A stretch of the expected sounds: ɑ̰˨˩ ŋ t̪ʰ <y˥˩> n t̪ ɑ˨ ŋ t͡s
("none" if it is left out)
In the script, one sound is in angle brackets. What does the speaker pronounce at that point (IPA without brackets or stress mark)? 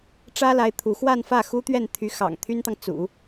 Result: y˥